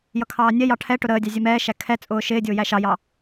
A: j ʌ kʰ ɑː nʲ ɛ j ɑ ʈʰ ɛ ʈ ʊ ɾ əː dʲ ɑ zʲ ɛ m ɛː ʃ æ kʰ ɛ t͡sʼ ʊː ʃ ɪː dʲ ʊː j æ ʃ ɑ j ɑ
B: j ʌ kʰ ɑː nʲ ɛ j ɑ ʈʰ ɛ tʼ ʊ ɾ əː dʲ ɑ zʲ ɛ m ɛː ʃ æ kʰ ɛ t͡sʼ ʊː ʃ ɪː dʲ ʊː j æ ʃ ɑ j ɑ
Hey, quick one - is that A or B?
A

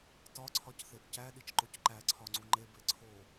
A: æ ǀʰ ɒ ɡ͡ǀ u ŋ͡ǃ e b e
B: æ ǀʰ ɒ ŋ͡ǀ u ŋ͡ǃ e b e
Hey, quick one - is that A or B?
B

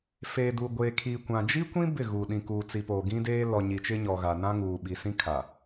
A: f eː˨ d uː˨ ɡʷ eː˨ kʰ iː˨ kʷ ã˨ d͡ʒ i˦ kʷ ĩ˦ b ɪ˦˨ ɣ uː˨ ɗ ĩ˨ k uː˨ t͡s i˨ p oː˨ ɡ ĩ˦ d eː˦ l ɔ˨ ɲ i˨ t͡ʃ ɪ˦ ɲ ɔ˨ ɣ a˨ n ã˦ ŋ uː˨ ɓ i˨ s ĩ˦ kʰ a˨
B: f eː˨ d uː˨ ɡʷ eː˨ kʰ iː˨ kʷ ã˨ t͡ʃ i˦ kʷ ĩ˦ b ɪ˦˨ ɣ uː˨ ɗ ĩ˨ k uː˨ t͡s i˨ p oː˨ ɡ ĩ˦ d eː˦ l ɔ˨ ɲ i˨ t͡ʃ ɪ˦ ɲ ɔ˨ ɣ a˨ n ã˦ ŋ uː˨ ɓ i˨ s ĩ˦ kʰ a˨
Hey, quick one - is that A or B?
A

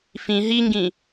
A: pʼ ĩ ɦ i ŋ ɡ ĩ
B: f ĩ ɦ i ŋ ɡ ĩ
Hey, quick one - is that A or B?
B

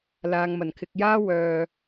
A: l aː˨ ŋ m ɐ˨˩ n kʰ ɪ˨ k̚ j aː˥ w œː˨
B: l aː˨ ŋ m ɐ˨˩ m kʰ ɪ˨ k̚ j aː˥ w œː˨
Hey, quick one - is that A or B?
A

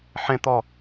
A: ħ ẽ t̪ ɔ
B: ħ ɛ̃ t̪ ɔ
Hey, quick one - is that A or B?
A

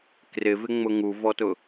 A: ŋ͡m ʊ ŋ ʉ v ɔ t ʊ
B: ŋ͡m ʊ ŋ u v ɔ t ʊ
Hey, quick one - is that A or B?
B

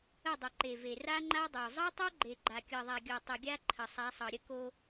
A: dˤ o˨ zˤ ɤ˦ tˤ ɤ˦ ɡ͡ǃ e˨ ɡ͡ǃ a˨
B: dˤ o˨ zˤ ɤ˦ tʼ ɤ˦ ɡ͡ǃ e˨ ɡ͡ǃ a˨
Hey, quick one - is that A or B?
A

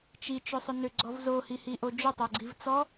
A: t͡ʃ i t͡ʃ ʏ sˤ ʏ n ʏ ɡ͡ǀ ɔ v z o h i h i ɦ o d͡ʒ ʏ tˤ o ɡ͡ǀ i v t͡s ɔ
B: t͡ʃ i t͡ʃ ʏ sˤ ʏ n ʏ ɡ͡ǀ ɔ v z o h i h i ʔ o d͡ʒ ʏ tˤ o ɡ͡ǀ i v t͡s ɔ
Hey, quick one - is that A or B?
B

